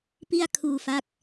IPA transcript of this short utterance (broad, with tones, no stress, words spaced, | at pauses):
pi˥˩a̯kʰuː˧fa˦˥k̚